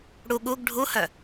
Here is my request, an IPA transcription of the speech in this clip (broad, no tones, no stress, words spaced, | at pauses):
ɽu ɠuɡ ɖʱuhœ